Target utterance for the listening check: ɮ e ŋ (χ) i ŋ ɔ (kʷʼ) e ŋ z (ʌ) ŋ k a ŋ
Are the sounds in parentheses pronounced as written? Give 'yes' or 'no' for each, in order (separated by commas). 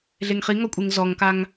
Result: yes, yes, no